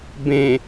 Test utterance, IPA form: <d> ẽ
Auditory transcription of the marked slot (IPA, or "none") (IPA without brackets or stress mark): b